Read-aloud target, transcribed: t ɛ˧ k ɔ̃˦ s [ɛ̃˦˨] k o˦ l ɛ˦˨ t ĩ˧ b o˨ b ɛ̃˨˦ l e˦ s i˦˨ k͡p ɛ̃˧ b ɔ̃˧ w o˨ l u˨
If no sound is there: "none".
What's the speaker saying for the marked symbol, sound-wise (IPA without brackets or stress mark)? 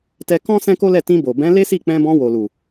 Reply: ɛ̃˦